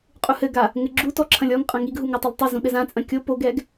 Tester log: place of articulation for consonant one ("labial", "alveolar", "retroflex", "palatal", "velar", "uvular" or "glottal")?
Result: uvular